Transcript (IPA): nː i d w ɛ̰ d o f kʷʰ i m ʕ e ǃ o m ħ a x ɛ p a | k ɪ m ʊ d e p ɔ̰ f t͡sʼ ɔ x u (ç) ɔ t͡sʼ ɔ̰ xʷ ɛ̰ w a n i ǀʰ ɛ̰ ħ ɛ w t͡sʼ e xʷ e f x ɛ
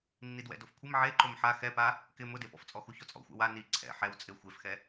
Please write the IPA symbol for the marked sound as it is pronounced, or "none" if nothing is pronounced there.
ç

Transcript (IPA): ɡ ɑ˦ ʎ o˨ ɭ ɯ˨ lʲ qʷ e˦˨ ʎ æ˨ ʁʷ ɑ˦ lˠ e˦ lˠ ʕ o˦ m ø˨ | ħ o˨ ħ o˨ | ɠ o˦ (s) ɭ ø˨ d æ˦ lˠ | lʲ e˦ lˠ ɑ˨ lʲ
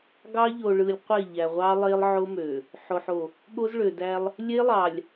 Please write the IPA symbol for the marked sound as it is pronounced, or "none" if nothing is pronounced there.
z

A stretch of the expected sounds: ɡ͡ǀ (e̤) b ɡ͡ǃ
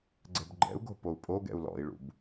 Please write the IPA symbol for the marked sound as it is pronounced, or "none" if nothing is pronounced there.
ɛ̤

